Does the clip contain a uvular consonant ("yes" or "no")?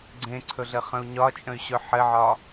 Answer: yes